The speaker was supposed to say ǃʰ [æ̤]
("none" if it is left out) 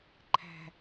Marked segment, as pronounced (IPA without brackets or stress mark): æ̤